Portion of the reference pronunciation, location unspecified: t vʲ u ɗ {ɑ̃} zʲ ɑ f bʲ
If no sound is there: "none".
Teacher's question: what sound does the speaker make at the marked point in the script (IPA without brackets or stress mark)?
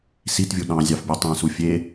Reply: ɑ̃